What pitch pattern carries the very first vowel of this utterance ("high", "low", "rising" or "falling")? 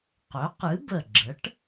rising